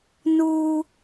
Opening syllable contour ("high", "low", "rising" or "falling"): high